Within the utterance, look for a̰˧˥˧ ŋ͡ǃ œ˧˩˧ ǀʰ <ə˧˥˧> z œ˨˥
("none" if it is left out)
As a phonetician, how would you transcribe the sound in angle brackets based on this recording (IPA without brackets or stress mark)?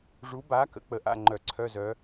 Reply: œ˧˥˧